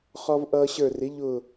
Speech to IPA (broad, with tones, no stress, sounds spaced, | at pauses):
χ ɔ˧ v ʔ ʌː˧ ɕ ə˞˧˩ r ɪ˩˥ ʎ ʊ˧˩